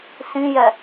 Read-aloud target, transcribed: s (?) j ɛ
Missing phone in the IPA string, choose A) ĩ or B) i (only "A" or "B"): A